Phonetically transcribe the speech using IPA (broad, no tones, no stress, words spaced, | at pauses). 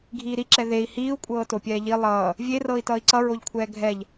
ɡʱiːɾiǁɛ ðei̯ hiːu̯kʷʼɤː topʲɛːʎi lˠʌː | vʲerɤːi̯tʌːi̯ ǀʌɹoʎkʷʰɛː ɡʱɛʎ